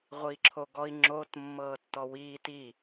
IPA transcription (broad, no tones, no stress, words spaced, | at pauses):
ʁʷiːǁʰoɡɔi̯ ŋ͡ǁot mːɤːtːɔwiː ti